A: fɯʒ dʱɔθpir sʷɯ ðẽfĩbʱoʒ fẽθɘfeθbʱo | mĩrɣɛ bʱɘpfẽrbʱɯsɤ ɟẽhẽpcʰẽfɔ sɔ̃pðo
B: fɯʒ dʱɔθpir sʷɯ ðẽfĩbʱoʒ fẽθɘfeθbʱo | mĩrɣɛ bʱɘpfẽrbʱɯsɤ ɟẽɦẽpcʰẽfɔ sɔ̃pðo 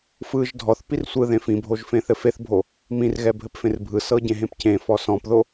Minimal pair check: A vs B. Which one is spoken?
B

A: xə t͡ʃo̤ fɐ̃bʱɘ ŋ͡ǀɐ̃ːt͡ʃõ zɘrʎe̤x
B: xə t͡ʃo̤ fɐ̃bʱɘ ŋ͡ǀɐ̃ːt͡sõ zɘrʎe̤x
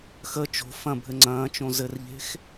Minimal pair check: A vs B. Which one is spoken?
A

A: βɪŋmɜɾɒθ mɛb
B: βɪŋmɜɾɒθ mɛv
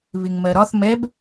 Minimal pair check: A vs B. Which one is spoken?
A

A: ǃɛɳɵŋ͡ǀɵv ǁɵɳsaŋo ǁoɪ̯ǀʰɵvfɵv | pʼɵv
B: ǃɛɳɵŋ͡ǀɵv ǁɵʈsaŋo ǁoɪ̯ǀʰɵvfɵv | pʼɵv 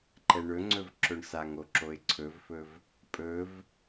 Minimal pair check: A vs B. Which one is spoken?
A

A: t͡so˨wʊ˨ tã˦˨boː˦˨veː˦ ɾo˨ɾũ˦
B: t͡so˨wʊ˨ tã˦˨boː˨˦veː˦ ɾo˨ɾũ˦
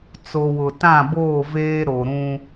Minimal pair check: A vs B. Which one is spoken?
A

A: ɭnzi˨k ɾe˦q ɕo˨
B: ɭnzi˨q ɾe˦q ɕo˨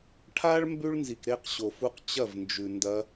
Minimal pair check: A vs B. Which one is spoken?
A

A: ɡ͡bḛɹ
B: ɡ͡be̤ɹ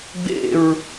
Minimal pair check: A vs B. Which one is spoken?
A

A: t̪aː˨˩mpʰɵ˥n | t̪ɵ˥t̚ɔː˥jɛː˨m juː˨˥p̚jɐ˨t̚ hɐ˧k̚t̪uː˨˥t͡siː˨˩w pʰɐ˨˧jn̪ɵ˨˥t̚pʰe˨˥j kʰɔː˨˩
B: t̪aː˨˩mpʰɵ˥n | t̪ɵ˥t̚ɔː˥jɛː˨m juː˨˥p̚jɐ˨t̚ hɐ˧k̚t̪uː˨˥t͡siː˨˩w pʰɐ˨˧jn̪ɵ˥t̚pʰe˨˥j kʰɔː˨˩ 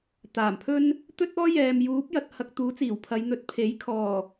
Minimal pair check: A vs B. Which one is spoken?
A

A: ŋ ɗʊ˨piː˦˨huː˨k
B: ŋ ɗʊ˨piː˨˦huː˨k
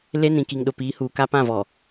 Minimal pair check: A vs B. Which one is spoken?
B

